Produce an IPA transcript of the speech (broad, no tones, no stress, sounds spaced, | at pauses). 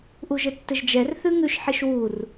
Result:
ʔ u ʒ ɘ tː ɘ ʒ d͡ʒ ɛ r θ ʉ ŋ ʉ ʃ ħ i ʃ w u r